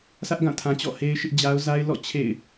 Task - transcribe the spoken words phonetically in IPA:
sʰ ä˦ ʔ ɡ ã˦˨ tʰ ã˨ t͡ɕ ɔ̰˦˨ h e˦ ɪ̯ ʃ ɪ˦ ʔ d͡ʑ a˦ ʊ̯ z a˦ ɪ̯ l ɔ̰˦˨ t͡ɕʰ ḛ˦˨ ɪ̯

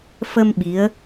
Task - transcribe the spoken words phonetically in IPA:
f ə˧ m ɓ i˧˥ ə̯

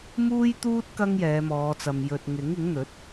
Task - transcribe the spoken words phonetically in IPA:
m uː˥ j t̪ uː˥ t̚ k ɐ˧ ŋ j ɛː˨˧ m ɔː˨˧ t͡s ɐ˨ m j ɵ˨ t̚ ŋ ɪ˨˥ ŋ ɪ˨˥ ŋ n̪ ɵ˨˥ t̚

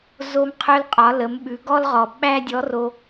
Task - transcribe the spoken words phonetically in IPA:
z o˧ m qʰ œ˧ l qʼ ɒ˩˧ l ə˩˧ m ɓ ʉ˩˧ ɡ ɔ˥ l ʁ ɔ˩ ɓ æ˥ dʲ ɔ˧˥ r o˧

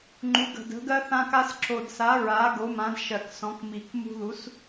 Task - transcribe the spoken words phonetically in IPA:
ŋ͡ǃ u˩˥ ɡ ə̤˨˩ d ə̤˩˥ ɡ ɜ˦ θ ã˦ k a˦ s ǁ o˨˩ d s a˩˥ ɹ a˩˥ ɡ o˩˥ m ã˩˥ d ʃ ɜ˨˩ k s ɔ̃˩˥ k m i˨˩ k m ṳ˦ ð u˩˥ s

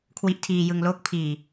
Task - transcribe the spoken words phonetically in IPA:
kʰ w i˦˥ ʔ tʰ iː˧ j ɯ˧ ŋ l oː˥˩ k̚ pʰ iː˨˩

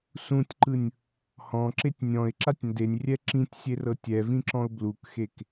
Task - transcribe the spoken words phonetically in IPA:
s ũ tʲ ǃ ɯ nʲ | h ɔ̃ ǁ e tʲ nʲ ɔ̃ ɪ̯ ǁ a tʲ n d e nʲ rʲ ɛ ǁ ĩ tʲ sʲ e r ɤ tʲ ɛ v ĩ ǁ ɔ̃ ʊ̯ b l u k x e k

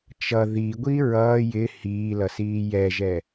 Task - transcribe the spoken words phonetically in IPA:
t͡ʃ ʌ ð i ɡʷ i ɹ ʌː j ɪ h iː l ʌ s iː j ɛ ʒ ɛ

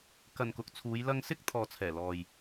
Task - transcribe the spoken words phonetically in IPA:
k ɐ˨ n k ʊ˨ k̚ t͡sʰ uː˨˧ j l ɐ˧ ŋ s ɪ˥ k̚ t̪ʰ ɔː˨ t͡sʰ ɛː˨˩ l ɔː˨ j

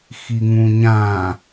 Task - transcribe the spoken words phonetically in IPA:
x i ŋ ũ ɲ ã

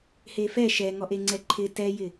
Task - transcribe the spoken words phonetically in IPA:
h e f ɛ ʃ ɛ ŋ ɔ ʔ e ŋ͡ǀ ɛ ǃʰ ɪ t ɛ j ɪ

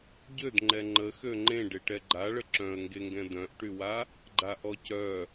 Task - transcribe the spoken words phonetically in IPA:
ɟ ø d ŋ͡ǃ ɛ ŋ͡ǃ ə x ø ŋ͡ǃ ẽ ɖ e ʈ ɛ ɡ͡ǃ a ɭ ə ǁ œ̃ ə̯ ŋ ɡ e ŋ ɡ ɛ̃ d œ̃ ʔ ʈ y w a | ɡ͡ǃ a ʔ ɔ c œ

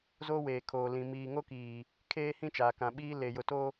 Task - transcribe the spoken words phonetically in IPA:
z o˦ w eː˨ kʰ oː˨ l ĩ˨ m iː˨ ŋ o˦ k iː˨ | kʰ eː˦ h ĩ˦ t͡ʃ aː˨ k ã˨ ɓ iː˦ l eː˨ j ʊ˨ t o˦

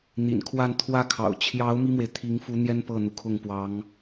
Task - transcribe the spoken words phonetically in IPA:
n̪ ḭ˨˩ n kʰ w a˥˧ n t̪ʰ w ä˥˩ kʰ ɑ̰˨˩ ʊ̯ t͡ɕʰ j ɑ˧˥ ʊ̯ m i˥ m w e˨ ɪ̯ t̪ʰ i˧˥ ŋ f u˧˥ n̪ j ɛ˥ n p ɤ˥˩ n̪ u˩ kʰ ʊ˥˩ ŋ p w ɑ˧˥ ŋ

